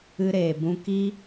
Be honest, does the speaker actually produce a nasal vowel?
yes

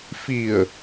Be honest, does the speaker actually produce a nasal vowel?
no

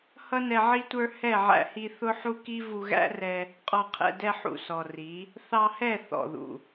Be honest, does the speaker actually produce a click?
no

